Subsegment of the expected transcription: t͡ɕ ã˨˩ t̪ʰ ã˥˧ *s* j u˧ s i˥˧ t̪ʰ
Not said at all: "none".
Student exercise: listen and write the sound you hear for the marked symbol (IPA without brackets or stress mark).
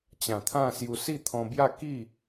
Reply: s